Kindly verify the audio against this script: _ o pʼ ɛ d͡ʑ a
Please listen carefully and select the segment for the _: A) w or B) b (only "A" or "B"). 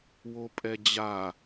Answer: A